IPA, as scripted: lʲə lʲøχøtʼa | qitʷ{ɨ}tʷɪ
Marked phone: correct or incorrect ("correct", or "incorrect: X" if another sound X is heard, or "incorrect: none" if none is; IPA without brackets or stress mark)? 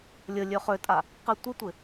incorrect: ɪ